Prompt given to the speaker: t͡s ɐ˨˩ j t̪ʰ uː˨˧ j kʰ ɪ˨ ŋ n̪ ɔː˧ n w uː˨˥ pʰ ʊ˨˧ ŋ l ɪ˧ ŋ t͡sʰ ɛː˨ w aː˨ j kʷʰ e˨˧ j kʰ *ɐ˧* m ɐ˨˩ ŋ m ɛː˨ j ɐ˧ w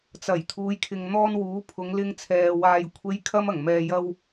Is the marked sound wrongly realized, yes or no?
no